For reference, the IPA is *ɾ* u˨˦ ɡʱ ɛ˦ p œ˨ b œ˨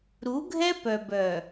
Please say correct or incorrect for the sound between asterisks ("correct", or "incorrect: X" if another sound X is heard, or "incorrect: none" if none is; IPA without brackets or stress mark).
correct